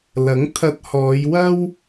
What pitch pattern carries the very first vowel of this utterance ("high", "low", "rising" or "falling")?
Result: rising